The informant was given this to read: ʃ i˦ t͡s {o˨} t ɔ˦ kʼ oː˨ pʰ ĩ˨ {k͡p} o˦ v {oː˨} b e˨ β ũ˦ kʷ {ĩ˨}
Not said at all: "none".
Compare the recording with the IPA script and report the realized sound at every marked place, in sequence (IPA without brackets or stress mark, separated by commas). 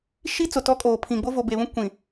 o˨, ɡ͡b, o˨, ĩ˨